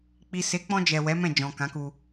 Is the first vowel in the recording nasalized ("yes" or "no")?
no